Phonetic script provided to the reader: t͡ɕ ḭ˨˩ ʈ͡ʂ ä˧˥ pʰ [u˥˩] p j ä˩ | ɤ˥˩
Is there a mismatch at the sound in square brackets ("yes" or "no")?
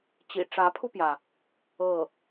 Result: yes